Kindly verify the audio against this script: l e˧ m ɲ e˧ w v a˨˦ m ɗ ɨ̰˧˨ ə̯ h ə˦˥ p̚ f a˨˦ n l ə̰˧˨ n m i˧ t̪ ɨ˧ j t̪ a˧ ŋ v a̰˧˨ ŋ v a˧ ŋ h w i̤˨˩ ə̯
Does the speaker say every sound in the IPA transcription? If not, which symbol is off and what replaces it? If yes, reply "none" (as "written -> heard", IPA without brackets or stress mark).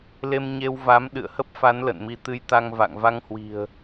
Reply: none